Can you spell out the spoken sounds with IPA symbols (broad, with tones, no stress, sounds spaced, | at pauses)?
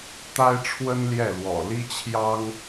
t̪ a˥ ɪ̯ ʈ͡ʂʰ w ə˥ n l j ɛ˥˩ l w ɔ̰˨˩ l i˥ t͡ɕʰ j ɑ˥ ŋ